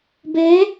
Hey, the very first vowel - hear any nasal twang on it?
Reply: no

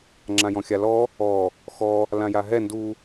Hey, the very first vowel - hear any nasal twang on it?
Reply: yes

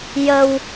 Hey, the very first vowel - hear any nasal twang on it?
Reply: no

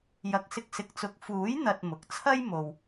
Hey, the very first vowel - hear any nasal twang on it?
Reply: no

